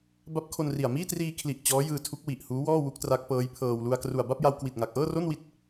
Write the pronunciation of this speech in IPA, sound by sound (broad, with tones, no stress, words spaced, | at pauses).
ba˦˥p̚ kʰo˧nri˨˩a̯ miː˥˩triː˧kʰli˨˩ʔ t͡ɕɔː˦˥jɯː˧ tʰu˦˥k̚wi˨˩ʔhuː˦˥wɔː˥˩ wu˦˥k̚tra˦˥k̚pɤː˦˥jpʰɤː˧w lu˧a̯ kru˨˩a̯ba˥˩p̚ja˧w kwi˨˩t̚ŋa˨˩k̚ʔɤː˥˩ro˥˩n wi˥˩t̚